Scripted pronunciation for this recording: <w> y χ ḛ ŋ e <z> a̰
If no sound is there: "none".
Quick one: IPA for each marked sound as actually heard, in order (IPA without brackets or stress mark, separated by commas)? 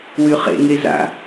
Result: w, z